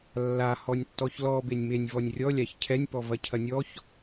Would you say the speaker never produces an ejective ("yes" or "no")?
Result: yes